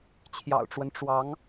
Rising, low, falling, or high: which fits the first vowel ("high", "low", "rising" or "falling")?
low